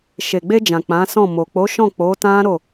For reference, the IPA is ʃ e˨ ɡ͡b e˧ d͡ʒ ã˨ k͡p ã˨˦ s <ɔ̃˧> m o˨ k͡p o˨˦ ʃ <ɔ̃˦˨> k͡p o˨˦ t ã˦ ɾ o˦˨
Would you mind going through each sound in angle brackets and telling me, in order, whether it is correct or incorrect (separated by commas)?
incorrect, correct